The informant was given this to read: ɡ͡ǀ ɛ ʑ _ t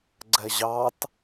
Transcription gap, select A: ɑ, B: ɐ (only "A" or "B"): A